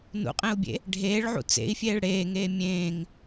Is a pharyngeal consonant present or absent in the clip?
present